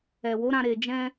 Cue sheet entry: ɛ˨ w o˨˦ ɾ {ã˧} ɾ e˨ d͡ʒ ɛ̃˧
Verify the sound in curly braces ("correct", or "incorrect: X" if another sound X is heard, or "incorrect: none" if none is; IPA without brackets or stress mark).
correct